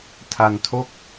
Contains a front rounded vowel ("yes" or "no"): no